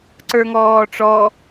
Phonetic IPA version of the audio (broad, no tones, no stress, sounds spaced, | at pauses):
ǀ ə˞ ŋ ɔː ʈ͡ʂ ɔ